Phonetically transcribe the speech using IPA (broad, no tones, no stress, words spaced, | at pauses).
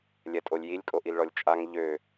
lʲɛtʼolʲjilʲ kʼoʔilɭɔlʲt͡ʃʼaŋ ʎø